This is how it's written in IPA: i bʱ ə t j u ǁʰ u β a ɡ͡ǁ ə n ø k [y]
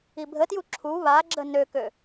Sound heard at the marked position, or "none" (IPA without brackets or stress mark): ø